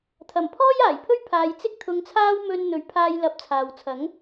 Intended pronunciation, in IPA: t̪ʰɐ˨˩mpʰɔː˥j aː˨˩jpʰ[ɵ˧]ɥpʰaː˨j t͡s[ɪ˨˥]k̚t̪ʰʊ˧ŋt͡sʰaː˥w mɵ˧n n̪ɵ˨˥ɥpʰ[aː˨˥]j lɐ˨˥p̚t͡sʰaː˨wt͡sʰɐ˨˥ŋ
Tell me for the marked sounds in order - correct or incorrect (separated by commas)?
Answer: incorrect, incorrect, incorrect